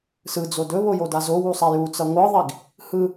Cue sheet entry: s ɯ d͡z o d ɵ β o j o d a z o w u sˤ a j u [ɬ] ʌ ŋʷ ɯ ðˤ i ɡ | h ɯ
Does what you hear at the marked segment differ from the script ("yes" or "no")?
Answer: yes